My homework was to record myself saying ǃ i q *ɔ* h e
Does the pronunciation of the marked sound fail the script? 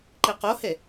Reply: yes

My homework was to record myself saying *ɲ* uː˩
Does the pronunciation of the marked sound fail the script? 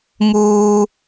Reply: yes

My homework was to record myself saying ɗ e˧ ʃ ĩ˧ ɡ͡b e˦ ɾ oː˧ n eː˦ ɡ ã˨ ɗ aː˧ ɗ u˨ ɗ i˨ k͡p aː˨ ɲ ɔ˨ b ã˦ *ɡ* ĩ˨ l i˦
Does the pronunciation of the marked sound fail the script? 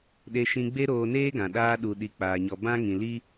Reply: yes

